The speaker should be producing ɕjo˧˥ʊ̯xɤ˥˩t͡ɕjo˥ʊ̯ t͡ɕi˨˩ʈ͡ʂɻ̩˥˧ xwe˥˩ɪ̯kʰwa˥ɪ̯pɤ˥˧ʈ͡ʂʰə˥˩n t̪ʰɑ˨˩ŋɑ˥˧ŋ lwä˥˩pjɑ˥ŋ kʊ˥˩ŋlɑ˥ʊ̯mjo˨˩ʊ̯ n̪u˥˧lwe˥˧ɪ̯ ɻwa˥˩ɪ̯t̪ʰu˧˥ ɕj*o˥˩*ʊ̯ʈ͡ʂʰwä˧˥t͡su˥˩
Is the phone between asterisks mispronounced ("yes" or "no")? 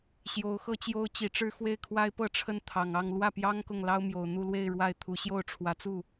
no